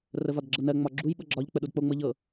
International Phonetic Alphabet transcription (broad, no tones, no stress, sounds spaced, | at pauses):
r ə v ɒ d ɡ͡ǁ ɤ n ɜ ŋ͡m ɒ ɡ͡ǁ u j ɓ ɤ ɡ͡ǁ ɒ ʎ k͡p ə ɗ u d k͡p o ŋ͡m ɤ ʎ ɤ